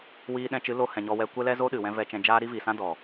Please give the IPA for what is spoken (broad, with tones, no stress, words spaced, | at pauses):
wiː˧ɗɛ̃˧t͡ʃɨ˨˦lo˧ hɛ̃˨ɲɔ˧wɛ˧ kʷɛ˦lɛ˦zo˦ ɗɨ˨wɛ̃˦ vɛ˧t͡ʃɛ̃˧d͡ʒaː˦ ɾi˦vi˨sã˦ dɔ˨